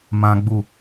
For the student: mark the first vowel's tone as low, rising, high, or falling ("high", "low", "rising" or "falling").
high